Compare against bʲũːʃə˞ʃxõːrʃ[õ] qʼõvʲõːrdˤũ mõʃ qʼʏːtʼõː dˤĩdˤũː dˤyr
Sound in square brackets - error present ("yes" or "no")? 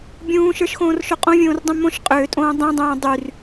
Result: yes